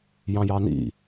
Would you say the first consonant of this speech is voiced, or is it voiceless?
voiced